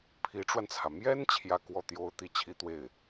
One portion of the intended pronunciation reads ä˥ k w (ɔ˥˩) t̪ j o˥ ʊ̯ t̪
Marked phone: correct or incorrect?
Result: correct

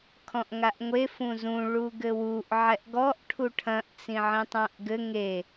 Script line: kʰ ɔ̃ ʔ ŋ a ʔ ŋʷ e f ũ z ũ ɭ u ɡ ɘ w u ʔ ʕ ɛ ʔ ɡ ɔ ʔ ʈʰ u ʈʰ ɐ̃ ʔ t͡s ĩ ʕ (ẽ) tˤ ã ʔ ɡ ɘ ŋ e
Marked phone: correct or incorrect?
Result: incorrect: ĩ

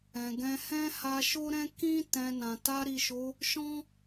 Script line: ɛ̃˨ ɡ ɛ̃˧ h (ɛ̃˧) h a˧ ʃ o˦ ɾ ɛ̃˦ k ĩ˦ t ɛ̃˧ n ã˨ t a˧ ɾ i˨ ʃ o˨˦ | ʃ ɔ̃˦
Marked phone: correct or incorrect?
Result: incorrect: ɛ̃˦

